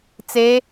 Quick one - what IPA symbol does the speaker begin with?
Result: t͡s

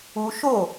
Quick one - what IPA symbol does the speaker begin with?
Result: u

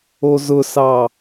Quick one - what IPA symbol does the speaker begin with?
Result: o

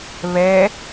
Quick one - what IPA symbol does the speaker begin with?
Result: β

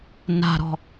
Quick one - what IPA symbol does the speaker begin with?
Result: n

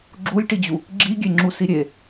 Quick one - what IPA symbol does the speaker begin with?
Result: ɡ͡ǁ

